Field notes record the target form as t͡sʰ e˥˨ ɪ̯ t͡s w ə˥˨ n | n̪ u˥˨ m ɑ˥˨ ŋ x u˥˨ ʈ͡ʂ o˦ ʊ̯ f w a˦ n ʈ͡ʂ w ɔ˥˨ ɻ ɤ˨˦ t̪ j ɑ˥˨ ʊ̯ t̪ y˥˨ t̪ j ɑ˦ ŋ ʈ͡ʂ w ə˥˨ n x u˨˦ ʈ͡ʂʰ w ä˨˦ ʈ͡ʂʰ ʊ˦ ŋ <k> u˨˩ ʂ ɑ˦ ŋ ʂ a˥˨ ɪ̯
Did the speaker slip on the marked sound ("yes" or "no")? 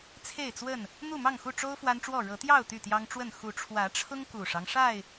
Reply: no